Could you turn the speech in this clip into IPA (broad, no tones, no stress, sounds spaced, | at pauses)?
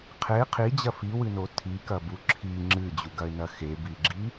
qʰ e qʰ i d͡ʑ ɐ f i w ɨ n o tʰ i k ɐ b u ǁʰ i ŋ͡ǁ ɨ d͡ʑ u ɡ ɐ ɪ̯ n ɐ x e b i ɡ͡ǁ i